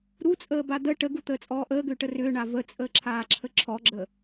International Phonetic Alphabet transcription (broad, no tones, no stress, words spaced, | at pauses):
ɾut͡sʼəːba d̪ə ʈəɡut̪əːt͡sʼɔː ʔəːɡʏːʈə rʏːɳa vət͡sʼəːǁʰaːǁʰə ǁʰɔɡ͡ǁə